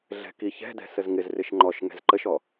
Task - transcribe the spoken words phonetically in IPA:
ɮ ɛ̤ k i ç ɛ̤ d ɛ̤ s ə z ŋ ɪ z r ɪ ʃ ŋ͡ǃ ɔ ʃ ŋ ɛ̤ z ǃ ə ʃ ɔ

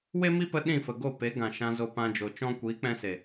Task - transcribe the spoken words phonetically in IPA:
w e˦ m i˦ p ə˧ ɗ ĩ˦˨ f ə˨ ɡ o˦˨ p e˨˦ ɡ ã˨ ʃ ã˧ z o˧ p ã˧ d͡ʒ o˨ t͡ʃ ɔ̃˦ kʷ iː˨˦ k͡p ɛ̃˧ s e˨

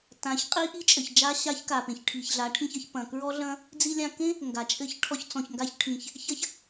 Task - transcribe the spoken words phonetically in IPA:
t ã˨˦ ç qʼ i˦ ʔ i˦ t͡ʃʼ ɘ˨ ç d͡ʒ a˦ ɕ a˦ ç k a˨ p ẽ˨ ç ʈʰ i˨ ç ɮ a˨˦ ʈʰ ĩ˧ ç ɐ˧ ç p ɐ̃˨ k ɹ ɔ˦ ɮ ɐ̃˦ | d͡z i˧ lʲ ã˧ k ẽ˦ | ŋ ɡ a˨ t͡ʃʼ ɘ˦ ç ʈʰ ɔ˧ ç t͡s ɔ̃˨ ç ŋ ɡ a˧ ç ʈʰ ĩ˨ ç | ç ɐ˦ ç

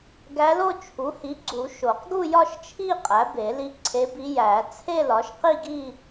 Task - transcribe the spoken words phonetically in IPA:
ɡ æ˧˥ l o˥˧ t͡ʃʰ u˩˥ h i˩˥ ɡ͡ǀ u˨˩˦ ʃ o˨˩˦ q ɡ u˥˧ j ɒ˥˧ ʃ t͡ʃʰ i˥˧ qʼ æ˩˥ b e˨˩˦ l i˧˥ ǀʰ e˧˥ b i˧˥ j æ˨˩˦ t͡sʰ e˥˧ l ɒ˩˥ ʃ q i˥˧ ɡ i˥˧

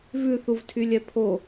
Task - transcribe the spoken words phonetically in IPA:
v ʉ θ u v tʰ y lʲ ɛ pʰ o

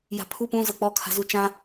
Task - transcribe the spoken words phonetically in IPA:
j a̤ pʰ u p ũ z ɤ k͡p ɔ kʰ a̤ z u t͡ʃ ã

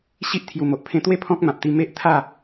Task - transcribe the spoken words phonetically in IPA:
ɕ i˦ ʔ t̪ʰ j u˨˩ m o˨ ʔ pʰ ẽ˧ t̪ w e˦ pʰ ɔ̃˦ k̚ m ã˨ p̚ t̪ i˧ m e˦ ʔ t̪ʰ a˥˧

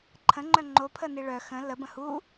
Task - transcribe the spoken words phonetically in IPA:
ǃʰ ə̃ ŋ͡ǃ œ ŋ͡ǃ o pʰ ə n i ɭ œ x ə̃ l ə b ə̃ h u

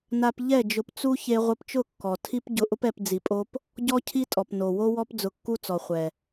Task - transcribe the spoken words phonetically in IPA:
n a˧ p ʎ ɛ˦˨ d͡ʒ ʊ˧ p t͡s u˦ ç e˧ ʁʷ ɪ˧ p t͡ʃ ʊ˦˨ kː ɔ˨ tʰ i˦ p ɟ ʊ˧ ʔ ʊ˦ p ɛ˧ p d͡z i˧ pʼ o˦ p | ɟ ɔ˦ cʰ i˦ tʼ ɔ˨ p n o˨ w o˦ w ɔ˦ p d͡z ʊ˧ kː u˦ t͡s ɔ˨ χʷ ɛ˨

